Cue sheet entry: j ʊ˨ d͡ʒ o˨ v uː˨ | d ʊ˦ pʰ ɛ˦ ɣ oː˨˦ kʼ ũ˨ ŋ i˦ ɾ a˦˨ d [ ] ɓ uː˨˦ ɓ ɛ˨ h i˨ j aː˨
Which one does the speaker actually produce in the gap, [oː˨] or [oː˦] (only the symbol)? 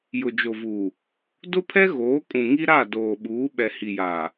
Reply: oː˨